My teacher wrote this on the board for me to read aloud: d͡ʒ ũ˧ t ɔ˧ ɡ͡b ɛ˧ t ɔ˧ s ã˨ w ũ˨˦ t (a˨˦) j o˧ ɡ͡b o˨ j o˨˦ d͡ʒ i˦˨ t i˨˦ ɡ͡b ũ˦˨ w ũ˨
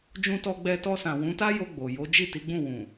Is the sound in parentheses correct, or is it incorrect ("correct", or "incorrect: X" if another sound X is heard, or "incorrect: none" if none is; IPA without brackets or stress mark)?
incorrect: a˦